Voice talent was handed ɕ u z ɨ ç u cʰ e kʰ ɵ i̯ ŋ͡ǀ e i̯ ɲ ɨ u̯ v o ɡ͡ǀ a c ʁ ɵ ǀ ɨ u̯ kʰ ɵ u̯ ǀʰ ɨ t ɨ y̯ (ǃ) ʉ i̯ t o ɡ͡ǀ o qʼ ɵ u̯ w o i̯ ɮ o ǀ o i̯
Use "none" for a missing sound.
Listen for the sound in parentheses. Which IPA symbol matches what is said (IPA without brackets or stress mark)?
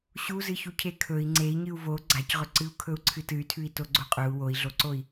tʰ